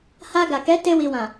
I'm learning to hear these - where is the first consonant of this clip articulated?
throat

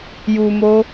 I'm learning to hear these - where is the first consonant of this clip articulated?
palate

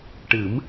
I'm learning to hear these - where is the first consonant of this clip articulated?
retroflex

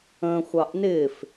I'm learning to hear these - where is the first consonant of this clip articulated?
velum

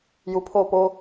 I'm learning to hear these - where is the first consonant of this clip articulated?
palate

